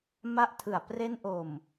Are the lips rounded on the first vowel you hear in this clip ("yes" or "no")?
no